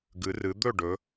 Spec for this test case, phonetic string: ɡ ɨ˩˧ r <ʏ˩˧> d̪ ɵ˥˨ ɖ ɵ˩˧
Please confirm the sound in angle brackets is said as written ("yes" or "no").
no